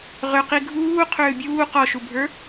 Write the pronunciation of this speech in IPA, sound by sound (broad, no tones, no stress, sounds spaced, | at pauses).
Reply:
ʁ ʏ q i ɡʱ uː qʰ ʏː bʲ uː q ɔ ʃ u bʱ ə˞